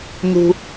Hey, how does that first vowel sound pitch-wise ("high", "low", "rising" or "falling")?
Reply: high